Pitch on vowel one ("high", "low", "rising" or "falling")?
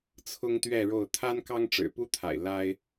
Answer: high